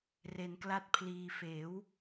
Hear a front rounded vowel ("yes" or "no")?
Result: no